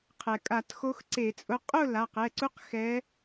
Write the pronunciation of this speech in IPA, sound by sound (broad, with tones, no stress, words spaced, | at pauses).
qʰɛ˩kʼa˧˩˧txo˧˥x ǀe˧˩˧t͡sʼʊ˧˥ qʼʊ˥˨la˩˧˩qɛ˩˧˩ǀu˧˥q xɛ˧˥